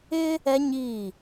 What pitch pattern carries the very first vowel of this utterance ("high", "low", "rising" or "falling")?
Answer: high